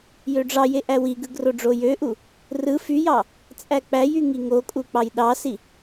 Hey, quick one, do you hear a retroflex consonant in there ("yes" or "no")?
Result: yes